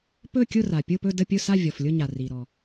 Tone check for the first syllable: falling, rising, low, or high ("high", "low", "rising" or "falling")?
falling